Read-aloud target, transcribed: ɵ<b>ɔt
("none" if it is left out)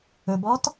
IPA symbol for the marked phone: b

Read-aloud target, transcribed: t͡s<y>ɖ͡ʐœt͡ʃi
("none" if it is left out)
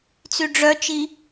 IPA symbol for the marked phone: y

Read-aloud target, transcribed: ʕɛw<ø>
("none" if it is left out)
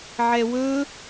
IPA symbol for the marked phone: ɵ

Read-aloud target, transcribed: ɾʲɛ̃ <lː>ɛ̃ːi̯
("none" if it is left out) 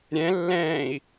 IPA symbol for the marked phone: lː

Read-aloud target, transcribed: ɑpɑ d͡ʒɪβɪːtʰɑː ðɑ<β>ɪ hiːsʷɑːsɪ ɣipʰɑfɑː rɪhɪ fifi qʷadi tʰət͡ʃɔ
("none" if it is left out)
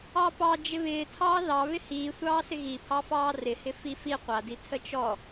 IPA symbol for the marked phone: β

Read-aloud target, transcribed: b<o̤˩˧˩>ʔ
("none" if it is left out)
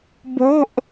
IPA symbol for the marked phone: o̤˩˧˩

